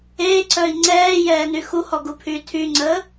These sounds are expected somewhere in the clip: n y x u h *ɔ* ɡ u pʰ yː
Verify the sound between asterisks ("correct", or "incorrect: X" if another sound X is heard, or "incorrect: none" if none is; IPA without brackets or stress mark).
correct